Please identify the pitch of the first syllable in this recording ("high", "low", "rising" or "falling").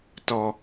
low